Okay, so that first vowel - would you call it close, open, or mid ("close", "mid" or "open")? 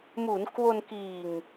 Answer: close